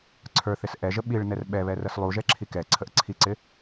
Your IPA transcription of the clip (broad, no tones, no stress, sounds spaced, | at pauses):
ǀʰ ə˞ θ ɪ s ʔ ɛ ʒ ə ɓ i ɭ n ɛ r ɓ ɛ β ɛ r ə s lˠ u ʒ ɛ ǁʰ i k ɛ ǀʰ ə ʔ ǀʰ i ǀ ɪ